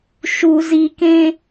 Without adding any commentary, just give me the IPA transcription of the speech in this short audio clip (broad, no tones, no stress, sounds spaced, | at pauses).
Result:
ʃ u z i k ẽ